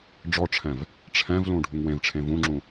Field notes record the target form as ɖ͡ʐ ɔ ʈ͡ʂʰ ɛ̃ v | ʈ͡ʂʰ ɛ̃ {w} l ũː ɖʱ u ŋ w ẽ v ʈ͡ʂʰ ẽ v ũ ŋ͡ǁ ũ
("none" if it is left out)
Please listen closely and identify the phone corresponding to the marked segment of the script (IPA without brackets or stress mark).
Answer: v